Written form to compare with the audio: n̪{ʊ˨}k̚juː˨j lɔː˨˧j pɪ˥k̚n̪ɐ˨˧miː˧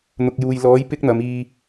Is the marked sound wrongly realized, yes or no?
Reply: no